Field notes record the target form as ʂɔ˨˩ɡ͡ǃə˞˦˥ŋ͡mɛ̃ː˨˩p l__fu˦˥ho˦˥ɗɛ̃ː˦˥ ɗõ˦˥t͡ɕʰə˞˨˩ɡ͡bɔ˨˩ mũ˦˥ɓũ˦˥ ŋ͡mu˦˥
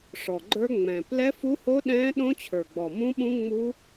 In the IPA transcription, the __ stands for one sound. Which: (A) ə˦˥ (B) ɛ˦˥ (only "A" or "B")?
B